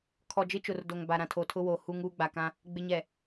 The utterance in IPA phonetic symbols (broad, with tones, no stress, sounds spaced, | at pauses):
kʰ ɔ˨ d͡ʒ ɪ˦ t͡ʃ ʊ˨ r d o˨ ŋ b a˨ ɾ ã˨ tʰ o˨ tʰ ʊ˦ w oː˨ h u˦ ŋ uː˦ ɡ͡b a˨ k ã˦ | ɡ͡b ɪ˨ ɲ ɛ˨